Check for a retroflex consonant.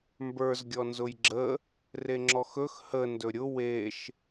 absent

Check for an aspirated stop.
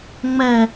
absent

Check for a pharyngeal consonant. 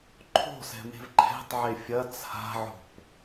present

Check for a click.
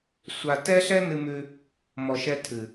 absent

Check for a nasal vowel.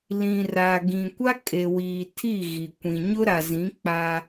present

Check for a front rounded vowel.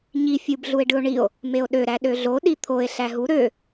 present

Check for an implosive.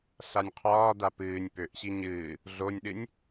present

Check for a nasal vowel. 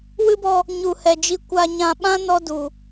present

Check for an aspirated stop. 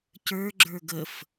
absent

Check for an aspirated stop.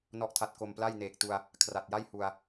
present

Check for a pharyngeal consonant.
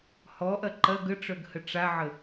present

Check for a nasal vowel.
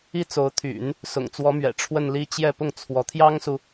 absent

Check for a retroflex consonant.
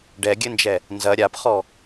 present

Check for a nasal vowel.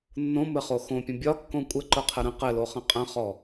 present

